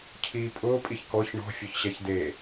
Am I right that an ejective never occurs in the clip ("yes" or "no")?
no